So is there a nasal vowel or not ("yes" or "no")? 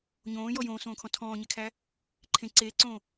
yes